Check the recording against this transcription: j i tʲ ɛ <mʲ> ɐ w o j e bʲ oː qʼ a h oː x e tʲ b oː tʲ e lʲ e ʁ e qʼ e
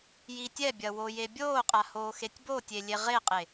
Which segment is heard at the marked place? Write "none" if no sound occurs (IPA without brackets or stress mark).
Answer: bʲ